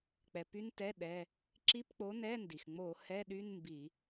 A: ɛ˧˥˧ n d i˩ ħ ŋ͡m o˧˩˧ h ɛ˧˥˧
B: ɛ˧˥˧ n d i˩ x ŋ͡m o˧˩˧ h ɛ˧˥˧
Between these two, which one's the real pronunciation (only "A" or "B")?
B